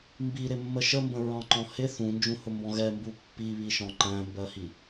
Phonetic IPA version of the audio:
m b i ɾ ɪ mː ə ʃ ə m b ə̃ ɹ ɑ̃ ǃ ɔ̃ h ɪ θ ũ n d͡ʒ ũ h ʊ m b ɔ̃ ɣ ɛ m b u pː i β i ʃ ɔ̃ ǃ æ̃ m b ɜ h i

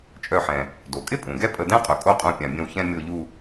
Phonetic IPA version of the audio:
t͡ʃʼ œ˧˩ ħ ɛ̃˩ | d o˩ kʼ ɪ˥˧ pʼ ũ˩ ɡ ɛ˥˧ pʼ ə˧˩ d ɛ̃˥˧ qʼ œ˩ kʼ o˥˧ qʼ ũ˧˩ pʲ ã˩ bʲ ə̃˧˩ w ç ɛ̃˥˧ mʲ o˧˩ ʎ u˧˩

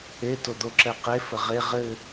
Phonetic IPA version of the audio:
e t o d̪ o ǁ ɛ q e f ə ʁ e ʁ ɘ

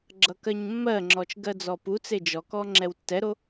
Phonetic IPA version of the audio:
ɡ͡ǁ ʌ k ɜ ɲ mː ɜ ŋ͡ǁ ɔ t͡ʃ ɡ ɜ d͡z ɔ p u t͡s e d͡ʒ ɔ k ɔ ŋ͡ǁ ɛ w tː ɛ ɾ o

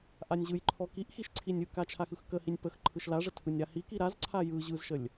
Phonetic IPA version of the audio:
ʔ a nʲ ʑ ɯ j ǃʰ ɔ k i ʔ x i ʃ ǀʰ i nʲ ɯ k a t͡ʃʰ a x ɯ x k ə h i nʲ p ə x ǃʰ ɯ ʃ l a ʐ ə tʰ ɯ nʲ ɾ a h i k i ɾ a z ǀʰ a j ɯ ʑ ɯ z ʃ ə lʲ

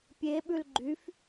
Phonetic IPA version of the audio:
pʲ e ɓ ʉ l ɡ͡ǃ y f

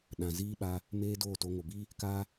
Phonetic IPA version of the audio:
ɗ ã˨ z iː˦ ɓ a˧ | m eː˧ d oː˦˨ t o˧ ŋ o˨ b iː˦ | k aː˦

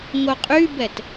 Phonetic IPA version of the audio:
ŋ o qʼ y b ɛ t

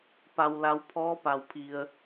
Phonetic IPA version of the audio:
p a˩ w l a˩˧ w pʰ ɔː˧˥ p a˩ w pʰ i˩ ə̯

